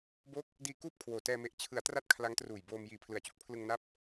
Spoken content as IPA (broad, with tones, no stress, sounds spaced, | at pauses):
b o˦˥ k̚ | d iː˧ k uː˥˩ p̚ kʰ w oː˨˩ t ɛː˧ m e˨˩ ʔ t͡ɕʰ ɯ˩˦ a̯ t r a˦˥ t̚ kʰ l a˦˥ ŋ t r uː˨˩ j b oː˧ m j iː˨˩ pʰ l ɯ˨˩ a̯ t͡ɕ u˥˩ k̚ pʰ l ɯ˧ ŋ n a˦˥ p̚